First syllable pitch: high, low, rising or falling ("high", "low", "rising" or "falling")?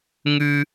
high